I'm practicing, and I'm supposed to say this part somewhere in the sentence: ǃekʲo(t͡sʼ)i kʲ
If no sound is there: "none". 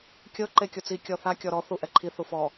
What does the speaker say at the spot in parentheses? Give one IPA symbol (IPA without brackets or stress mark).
t͡s